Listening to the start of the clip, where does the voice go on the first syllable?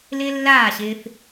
high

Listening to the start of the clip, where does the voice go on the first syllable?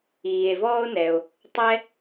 low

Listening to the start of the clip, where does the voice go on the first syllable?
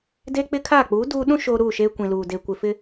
high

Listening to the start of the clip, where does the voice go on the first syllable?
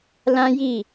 high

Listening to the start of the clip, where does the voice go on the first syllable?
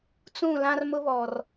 falling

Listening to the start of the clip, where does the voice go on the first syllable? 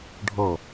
falling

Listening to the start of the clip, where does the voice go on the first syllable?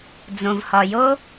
low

